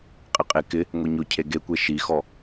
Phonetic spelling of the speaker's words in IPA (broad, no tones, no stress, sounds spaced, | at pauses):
qʼ ɪ qʼ e k ɪ | ŋʷ e ɲ ʊ cʰ e ɡ e kʷ e ʃ i x ɔ